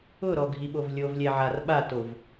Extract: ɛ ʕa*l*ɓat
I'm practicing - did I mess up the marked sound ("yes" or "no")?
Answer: yes